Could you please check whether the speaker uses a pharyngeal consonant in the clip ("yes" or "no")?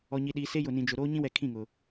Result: no